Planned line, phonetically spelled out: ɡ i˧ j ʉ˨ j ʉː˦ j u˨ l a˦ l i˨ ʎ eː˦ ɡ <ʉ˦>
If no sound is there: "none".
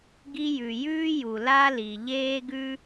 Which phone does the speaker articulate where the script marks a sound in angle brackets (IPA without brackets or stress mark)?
ʉ˦